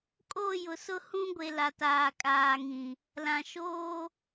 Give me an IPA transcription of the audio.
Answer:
kʼ o˦˨ j ʊ˨ s ʊ˦ h ũ˦ ɡʷ e˨ l a˨ t aː˨ kʼ aː˨ ŋ ĩ˨ | l ã˨ ʃ oː˦

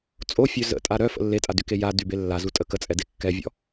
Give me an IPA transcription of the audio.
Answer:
t͡sʼ o fʲ ø z ə̰ tʼ a ɾ œ f ə̰ lː e tʼ a d y k e j a d y b e lː a z u tʼ ə k ə t͡sʼ ɛ d e kː ɛ vʲ ɔ̰

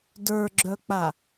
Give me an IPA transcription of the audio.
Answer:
d ə˞ ɡ͡ǁ œ k͡p a

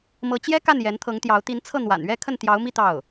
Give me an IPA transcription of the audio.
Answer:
m ɤ˧˥ t͡ɕ j ɛ˥ k a˥˩ n j ɛ˧˥ n t̪ʰ ɤ˧˥ ŋ t̪ j ɑ˧˥ ʊ̯ t̪ i˧˥ n t͡sʰ ɤ˥˩ n̪ w a̰˨˩ n ɥ ɛ˥˧ kʰ ə˥˩ n t̪ j ɑ˧˥ ʊ̯ m i˥˧ t̪ ɑ˥˩ ʊ̯

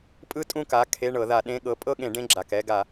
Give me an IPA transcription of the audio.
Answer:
pʼ ɯ˥ tʼ ũ˥˧ k a˩˧˩ kʰ e˧˥˧ ɳ ɤ˧˩˧ ð a˧˩˧ ɗ ẽ˧˥˧ ɠ ɤ˨˦ pʼ ɤ˥˧ ɠ ẽ˧˩˧ ɖ ẽ˧˥˧ ɡ͡ǁ a˩˧˩ k ɛ˥˧ ɡ a˧˩˧

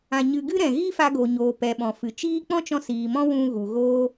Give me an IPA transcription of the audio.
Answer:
ã˧ ɲ ɨ˧ ɡ ɨ˦ ɾ ɛ̃˨ ɣ i˦ f a˧ ɡ o˨ ɲ oː˨ p ɛ˨ ɓ ɔ̃˨ f ɨ˨ t͡ʃ iː˦ k͡p ɔ̃˦ t͡ʃ ɔ̃˧ s iː˨ m ɔ̃˦ w ũ˧ ɣ u˨ ɣ oː˧

